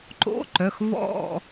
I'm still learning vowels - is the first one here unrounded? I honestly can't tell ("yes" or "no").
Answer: no